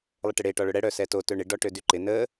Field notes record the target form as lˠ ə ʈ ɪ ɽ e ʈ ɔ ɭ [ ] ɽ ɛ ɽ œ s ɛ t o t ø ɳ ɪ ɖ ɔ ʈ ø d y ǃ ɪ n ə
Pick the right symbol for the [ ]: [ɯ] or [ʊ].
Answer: ʊ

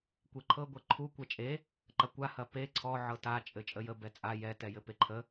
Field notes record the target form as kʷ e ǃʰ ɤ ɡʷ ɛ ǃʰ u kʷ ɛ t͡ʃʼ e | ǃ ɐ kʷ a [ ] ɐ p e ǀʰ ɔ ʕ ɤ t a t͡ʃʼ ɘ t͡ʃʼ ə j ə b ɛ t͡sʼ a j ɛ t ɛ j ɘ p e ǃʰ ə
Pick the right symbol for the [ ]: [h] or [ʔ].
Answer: h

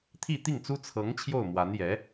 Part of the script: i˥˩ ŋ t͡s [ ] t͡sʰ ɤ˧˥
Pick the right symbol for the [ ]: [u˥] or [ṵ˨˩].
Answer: u˥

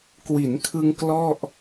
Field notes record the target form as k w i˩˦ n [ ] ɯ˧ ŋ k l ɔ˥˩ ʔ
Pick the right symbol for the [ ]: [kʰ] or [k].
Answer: kʰ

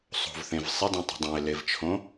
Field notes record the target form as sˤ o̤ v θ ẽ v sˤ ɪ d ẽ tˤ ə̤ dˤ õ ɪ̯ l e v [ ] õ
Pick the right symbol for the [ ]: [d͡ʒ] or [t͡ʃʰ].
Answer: t͡ʃʰ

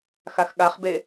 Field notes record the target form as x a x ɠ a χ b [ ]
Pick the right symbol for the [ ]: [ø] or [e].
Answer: e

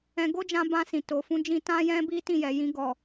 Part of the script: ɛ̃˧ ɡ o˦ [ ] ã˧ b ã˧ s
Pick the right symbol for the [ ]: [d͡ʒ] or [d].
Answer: d͡ʒ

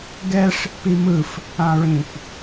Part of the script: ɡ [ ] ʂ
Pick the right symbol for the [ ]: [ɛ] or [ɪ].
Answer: ɛ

